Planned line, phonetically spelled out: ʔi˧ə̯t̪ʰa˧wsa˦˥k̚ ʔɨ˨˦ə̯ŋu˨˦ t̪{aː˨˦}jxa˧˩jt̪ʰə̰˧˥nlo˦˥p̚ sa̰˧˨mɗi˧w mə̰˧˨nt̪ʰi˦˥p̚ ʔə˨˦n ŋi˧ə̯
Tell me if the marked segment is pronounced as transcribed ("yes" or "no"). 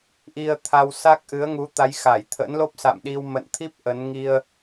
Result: no